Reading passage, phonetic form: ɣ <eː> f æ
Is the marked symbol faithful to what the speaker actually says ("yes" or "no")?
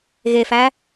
no